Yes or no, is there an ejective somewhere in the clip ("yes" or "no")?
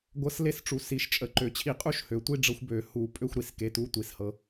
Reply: yes